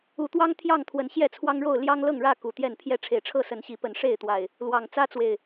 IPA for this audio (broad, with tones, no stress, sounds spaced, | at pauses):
u˨˦ t̪ w ɑ˦ ŋ t̪ʰ j ɑ˥˨ ŋ t̪ʰ w ə˨˦ n ɕ j ɛ˥˨ t͡sʰ w ɑ˦ ŋ ɻ o˥˨ ʊ̯ l j ɑ˦ ŋ l ɤ˥˨ ŋ ɻ ä˥˨ k u˨˩ t̪ j ɛ˥˨ n pʰ j ɛ˥˨ ʈ͡ʂʰ e˨˩ ɪ̯ ʈ͡ʂʰ ɤ˥˨ s ə˨˦ n ɕ i˨˦ p ə˨˦ n ʂ e˥˨ ɪ̯ t̪ w a˨˩ ɪ̯ | l w ɑ˨˩ ŋ t͡s ä˦ t͡s w e˨˩ ɪ̯